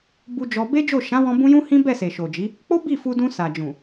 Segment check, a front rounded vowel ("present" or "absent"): absent